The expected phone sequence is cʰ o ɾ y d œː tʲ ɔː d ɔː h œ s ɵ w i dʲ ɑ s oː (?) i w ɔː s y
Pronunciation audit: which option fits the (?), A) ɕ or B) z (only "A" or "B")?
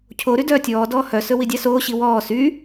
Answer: A